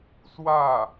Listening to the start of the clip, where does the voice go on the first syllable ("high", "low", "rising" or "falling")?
falling